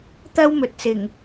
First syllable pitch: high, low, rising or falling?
high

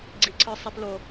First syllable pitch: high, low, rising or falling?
low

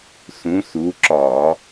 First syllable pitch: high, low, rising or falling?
rising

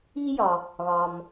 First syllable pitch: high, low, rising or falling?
high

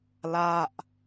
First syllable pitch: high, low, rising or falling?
falling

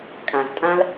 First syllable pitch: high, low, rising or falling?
low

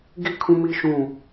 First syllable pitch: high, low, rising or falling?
falling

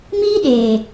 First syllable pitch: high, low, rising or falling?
high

